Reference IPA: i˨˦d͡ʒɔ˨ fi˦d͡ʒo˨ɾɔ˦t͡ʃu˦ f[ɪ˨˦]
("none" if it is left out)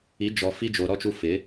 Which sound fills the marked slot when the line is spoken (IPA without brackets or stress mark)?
ɪ˨˦